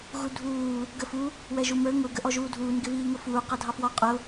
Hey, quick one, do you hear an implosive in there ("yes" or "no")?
no